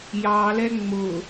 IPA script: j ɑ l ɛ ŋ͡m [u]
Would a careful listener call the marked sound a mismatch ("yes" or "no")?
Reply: yes